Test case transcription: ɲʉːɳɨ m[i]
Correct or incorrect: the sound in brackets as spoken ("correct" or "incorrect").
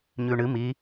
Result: correct